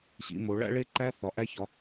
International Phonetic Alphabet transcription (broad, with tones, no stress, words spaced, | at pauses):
ɕḭ˩˧mo˩˧ ɭæ̰˦˥ɭe˦˥ǃæ˦˥ θɒ˩˧ʔæ˦˥çɒ˩˧